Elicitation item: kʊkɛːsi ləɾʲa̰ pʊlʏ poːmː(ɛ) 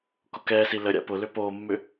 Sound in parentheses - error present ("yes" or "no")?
yes